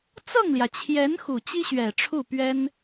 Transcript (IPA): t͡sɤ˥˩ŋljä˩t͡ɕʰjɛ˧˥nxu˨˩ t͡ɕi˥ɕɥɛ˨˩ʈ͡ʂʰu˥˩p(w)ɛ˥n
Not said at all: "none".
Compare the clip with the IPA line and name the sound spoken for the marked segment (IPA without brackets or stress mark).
ɥ